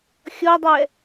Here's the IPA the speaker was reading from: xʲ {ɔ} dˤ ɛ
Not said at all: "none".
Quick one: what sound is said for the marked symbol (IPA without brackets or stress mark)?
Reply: ɔ